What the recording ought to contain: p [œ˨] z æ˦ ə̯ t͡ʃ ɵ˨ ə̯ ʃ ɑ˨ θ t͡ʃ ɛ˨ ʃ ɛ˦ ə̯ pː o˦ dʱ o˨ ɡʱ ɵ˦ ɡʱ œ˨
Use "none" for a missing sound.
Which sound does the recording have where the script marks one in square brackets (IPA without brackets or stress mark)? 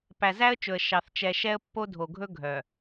æ˨